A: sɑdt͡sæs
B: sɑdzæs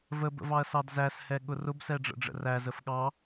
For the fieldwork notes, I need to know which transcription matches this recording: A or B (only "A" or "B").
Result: B